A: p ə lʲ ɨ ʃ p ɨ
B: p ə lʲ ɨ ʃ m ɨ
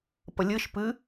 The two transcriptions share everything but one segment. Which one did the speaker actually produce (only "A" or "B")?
A